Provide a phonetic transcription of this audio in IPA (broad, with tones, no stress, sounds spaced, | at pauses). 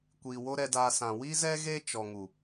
kʷ iː˨ w o˦ ɾ ɛ˧ d aː˧ s ã˨ w i˦ z ɛ˦ ɣ e˦ t͡ʃ ɔ˨ ŋ u˨